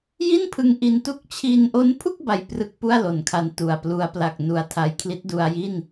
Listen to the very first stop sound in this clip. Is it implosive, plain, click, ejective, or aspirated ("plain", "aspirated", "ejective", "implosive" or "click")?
aspirated